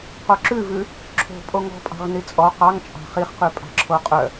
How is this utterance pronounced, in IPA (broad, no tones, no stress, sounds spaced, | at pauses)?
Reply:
q o ǁ ʉ v ʉ | ǁʰ o̤ pʼ o ŋ ɔ̤ pʼ ɑ̤ ʁ n i t͡sʼ ɔ q ɑ ŋ t͡ʃʼ ɑ̤ χ i χ q ʉ pʼ ɑ̤ ǁʰ o qʼ œ